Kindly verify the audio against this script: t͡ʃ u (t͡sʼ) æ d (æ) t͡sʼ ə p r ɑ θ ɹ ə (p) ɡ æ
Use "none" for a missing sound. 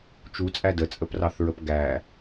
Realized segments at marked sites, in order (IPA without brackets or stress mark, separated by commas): t͡sʼ, ə, p